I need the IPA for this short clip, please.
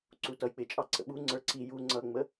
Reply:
ǀ u t ʌ j k͡p ɪ t͡ʃʼ ɑ ǀ ə̰ ɓ u ŋ͡ǀ ə˞ ǀ i j u ŋ͡ǀ ʌ ŋ͡m ə

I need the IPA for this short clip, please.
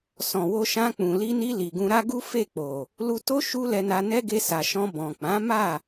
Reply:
s ɔ̃˨ w o˧ ʃ ã˧ k͡p ũ˨ l i˧ n i˧ l i˨ ɡ ũ˧ ɾ a˦ ɡ u˦ f e˦˨ k͡p o˨ | l u˧ t o˦ ʃ u˦ l ɛ˧ n a˧ n ɛ˦ ɡ e˧ s a˨ ʃ ɔ̃˧ b ɔ̃˨ k͡p ã˨˦ m a˦˨

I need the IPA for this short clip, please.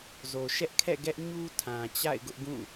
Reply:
z o˨ ʃ ɛ˦ ʔ kʰ ɛ̰˦˨ ɡ ɛ˦ ʔ ɲ u˦ tʰ ã˨ t͡ɕ a̰˦˨ ɪ̯ ɡ ʊ˦ ʔ ɡ ũ˦˨

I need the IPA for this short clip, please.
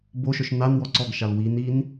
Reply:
b o ʃ œ ʃ n a n w ɔ ǀ ɔ ɡ ʃ a l w i n i n

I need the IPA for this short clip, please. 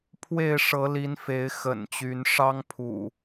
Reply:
pʰ w e˥˨ ɪ̯ ʂ ɤ˨˦ l i˨˦ n f e˨˦ ɪ̯ x ə̰˨˩ n t͡ɕ y˨˦ n ʂ ɑ˦ ŋ pʰ ṵ˨˩

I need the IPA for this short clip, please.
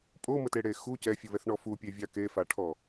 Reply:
pʼ o m ə t e ɽ e x u c ɛ fʲ u β ɛ θ ɳ ɔ f u pʲ e vʲ a k e f a ʈʰ ɔ

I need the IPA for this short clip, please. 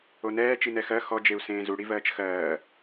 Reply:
o n ɛː t͡ʃ i n ɛ x ɜ x ɔ d͡ʒ e u̯ s ẽː z u ɽ i v ɜː t͡ʃ x ɜː

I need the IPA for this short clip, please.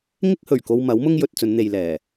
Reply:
ŋ ɪ˥ k̚ h ɵ˨˩ ɥ k o˧ w m ɐ˨˥ w m ʊ˥ ŋ j ɵ˧ t̚ t͡s ɵ˨˧ n n̪ e˨ j l ɛː˨˩

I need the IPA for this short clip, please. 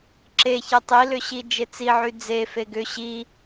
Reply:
ǁ e ç ɛ tˤ i l ʏ ɕ i d͡ʒ e t͡s i ʕ y d͡z e f e ɡ ʏ ɕ i

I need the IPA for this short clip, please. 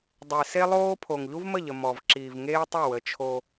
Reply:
dˤ e˨ s e˦ lˠ oː˦ pʰ o˨ ŋ ʎ u˦ v m ə˦˨ ʎ ə˨ m ɔ˨ v ǁ iː˨ v ŋ eː˦ tˤ ʊ˦˨ w ə˨˦ t͡ʃʰ o˦

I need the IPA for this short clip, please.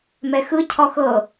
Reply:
m ɛ x ɯ cʰ ɔ x ɤ

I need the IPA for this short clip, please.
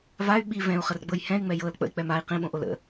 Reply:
v a y̯ ɓ i v ɛ̃ u̯ χ ə r ɡ͡b ɤ j h ɛ̃ y̯ ŋ͡m ɛ j ɤ l k͡p ə̰ i̯ k͡p ɛ m a i̯ q ĩ ɓ õ ʔ o l ə̰

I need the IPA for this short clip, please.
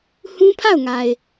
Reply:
h ũ˦ pʰ a˦˨ ʊ̯ ŋ a˨ ɪ̯

